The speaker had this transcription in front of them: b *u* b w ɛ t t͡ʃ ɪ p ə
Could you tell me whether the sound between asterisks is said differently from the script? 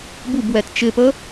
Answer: no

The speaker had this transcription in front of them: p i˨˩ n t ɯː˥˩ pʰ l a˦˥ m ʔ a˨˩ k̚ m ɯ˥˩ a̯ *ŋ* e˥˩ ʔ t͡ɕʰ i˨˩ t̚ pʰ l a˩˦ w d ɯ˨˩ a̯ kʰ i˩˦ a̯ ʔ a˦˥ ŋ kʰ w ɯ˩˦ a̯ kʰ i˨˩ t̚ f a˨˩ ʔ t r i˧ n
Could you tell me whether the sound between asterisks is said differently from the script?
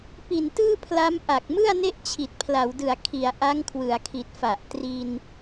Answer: yes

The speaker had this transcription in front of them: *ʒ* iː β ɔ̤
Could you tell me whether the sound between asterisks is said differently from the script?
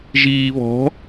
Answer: no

